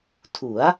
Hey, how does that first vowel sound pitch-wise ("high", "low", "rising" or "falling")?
rising